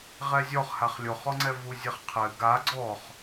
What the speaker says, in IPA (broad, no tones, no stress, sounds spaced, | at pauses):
ʁ ɛ zʲ ɔ χ h a χ lʲ o χ ɔ ŋ͡ǀ ɛ v u zʲ ɘ χ qʰ ɘ ɡ a ɡ͡ǀ ɔ χ